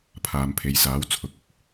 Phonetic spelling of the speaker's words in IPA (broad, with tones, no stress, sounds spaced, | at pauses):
pʰ aː˨ m pʰ e˨ j s aː˨˥ w t͡sʰ ʊ˨˥ k̚ ʊ˥ k̚